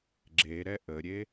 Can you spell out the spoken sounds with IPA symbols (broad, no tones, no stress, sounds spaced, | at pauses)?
ɡ͡ǁ e ɾ ɛ ʔ ə ɾʲ e